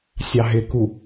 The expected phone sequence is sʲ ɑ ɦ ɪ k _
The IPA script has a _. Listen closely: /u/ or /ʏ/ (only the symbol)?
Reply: u